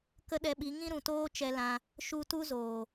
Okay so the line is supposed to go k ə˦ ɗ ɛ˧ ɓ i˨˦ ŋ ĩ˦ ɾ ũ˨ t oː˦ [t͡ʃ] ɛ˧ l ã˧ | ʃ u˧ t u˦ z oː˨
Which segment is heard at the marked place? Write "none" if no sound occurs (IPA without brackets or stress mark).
t͡ʃ